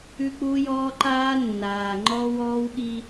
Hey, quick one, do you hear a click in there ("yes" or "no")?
yes